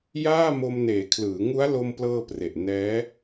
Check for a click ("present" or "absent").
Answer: absent